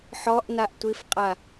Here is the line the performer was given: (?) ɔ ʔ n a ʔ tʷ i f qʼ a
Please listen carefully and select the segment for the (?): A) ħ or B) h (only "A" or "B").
A